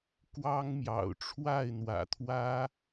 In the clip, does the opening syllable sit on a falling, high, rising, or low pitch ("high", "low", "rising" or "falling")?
high